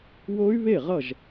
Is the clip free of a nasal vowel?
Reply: yes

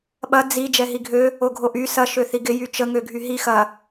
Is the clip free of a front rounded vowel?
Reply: no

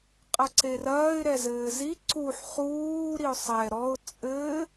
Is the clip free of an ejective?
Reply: no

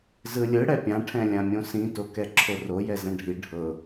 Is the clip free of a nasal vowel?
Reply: no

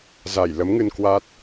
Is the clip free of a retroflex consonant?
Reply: yes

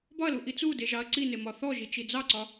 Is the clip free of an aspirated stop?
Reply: yes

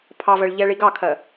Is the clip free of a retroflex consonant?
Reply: no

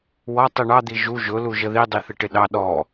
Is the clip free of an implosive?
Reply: no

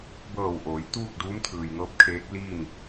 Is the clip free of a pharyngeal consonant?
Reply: yes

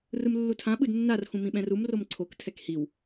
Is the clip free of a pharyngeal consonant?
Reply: yes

